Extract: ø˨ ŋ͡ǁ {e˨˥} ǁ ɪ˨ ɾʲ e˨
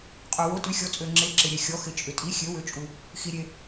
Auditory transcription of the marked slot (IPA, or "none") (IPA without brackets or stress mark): e˨˥